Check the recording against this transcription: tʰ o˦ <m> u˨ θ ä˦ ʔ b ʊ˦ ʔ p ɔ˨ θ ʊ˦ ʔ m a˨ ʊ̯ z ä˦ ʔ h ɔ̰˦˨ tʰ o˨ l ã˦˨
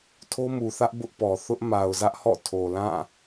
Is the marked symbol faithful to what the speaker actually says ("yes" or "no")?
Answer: yes